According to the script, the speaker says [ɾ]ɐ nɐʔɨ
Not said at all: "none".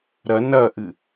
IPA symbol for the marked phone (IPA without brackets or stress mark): ɾ